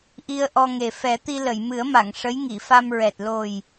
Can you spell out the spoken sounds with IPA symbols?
ʔi˧ə̯ʔɔ˧ŋe˨˩ fɛ˨˩˦t̪i˧lə˨˩˨j mɨ˨˩˦ə̯ma˨˩˨ŋ ʂə˧˥jŋi˨˩˨fa˧mɹɛ˨˩t̚ lo˨˩j

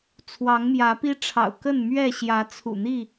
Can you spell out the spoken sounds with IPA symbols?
t͡sʰwɑ˨˦ŋmjä˨˦pi˦ʈ͡ʂʰɑ̰˨˩ʊ̯ kə˥˨nmɥɛ˥˨ ɕjä˨˦t͡sʰṵ˨˩n̪i˥˨

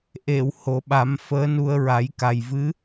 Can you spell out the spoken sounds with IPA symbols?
ʔe˨˩˨w ho˨˩˦ɓa˨˩˦m fəː˧˥nu˧ə̯ ɹa˨˩˦jka˨˩j vɨ˧˥

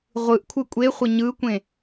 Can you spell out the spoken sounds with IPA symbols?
ʁʷɯʔkʷʰɯ kʷʼeχʷə ɲɯkʷẽ

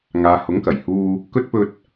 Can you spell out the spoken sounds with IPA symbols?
ŋaː˨hʊ˨˥ŋkɐ˨˩j huː˧ | kɵ˥t̚ pɵ˧t̚

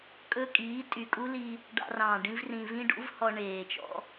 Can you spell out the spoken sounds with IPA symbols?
kʼɵ˧kʼiː˨˦ tʼy˨kʼu˦li˧ | ɖɑ̰˧rɑ̃ː˨ ɖĩ˦vrĩ˧ vĩ˦ɖṵ˦vhɔ˧ ɳeː˨t͡ʃɔ̰˧

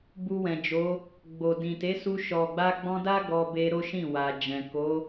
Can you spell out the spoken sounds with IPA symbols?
bu˧wɛ̃˨d͡ʒo˨˦ | ɡ͡bo˨ dĩ˨te˨˦su˧ ʃɔ˨ɡ͡ba˧ɡ͡bɔ̃˧da˦ ɡɔ˧be˧ ɾo˦ʃĩ˦˨wa˨d͡ʒɛ̃˨ ko˨˦

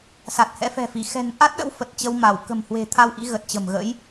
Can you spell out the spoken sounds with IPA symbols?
sa˨˩t̚hɛ̰˧˥fɛ̤˨˩fi˧˩ xɛ̤˨˩nʔa˦˥t̚ ɗə̰˧˥wfə˨˩t̚ t͡ɕə˧wma˧˩w kə̤˨˩mhwe̤˨˩t̪ʰa˧w ʔḭ˧˥ɣə˨˩t̚t͡ɕə̤˨˩mɣə̰˧˥j

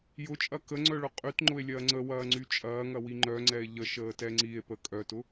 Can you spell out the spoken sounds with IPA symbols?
jʊt͡ʃʼɐ kəŋ͡ǀœɭʊ qʼytŋ͡ǃʊe̯lʲɐː ŋ͡ǀəwɐːŋ͡ǀy t͡ʃʼɐːŋɐwi ŋ͡ǃœŋ͡ǀɛe̯ ʎəʃəːtɛ ŋ͡ǀie̯pə kʼœtʊ

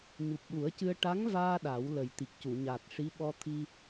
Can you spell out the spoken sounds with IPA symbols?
ɲu˨˩p̚ɗu˨˩˦ə̯cɨ˧ə̯ ʈa˧˥ŋvaː˧ ɗa˨˩˦wlə˨˩j t̪i˨˩k̚cu˨˩˨ɲa˨˩t̚ʂi˧˥ ɓɔ˧t̪ʰi˧

